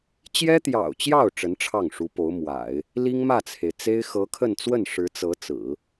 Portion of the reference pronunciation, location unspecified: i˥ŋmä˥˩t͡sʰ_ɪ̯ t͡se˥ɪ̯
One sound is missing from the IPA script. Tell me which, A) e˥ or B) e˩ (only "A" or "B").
B